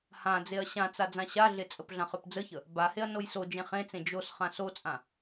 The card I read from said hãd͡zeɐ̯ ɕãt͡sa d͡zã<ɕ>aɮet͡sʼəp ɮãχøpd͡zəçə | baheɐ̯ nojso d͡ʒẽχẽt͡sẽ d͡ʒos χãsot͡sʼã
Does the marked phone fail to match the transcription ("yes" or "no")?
no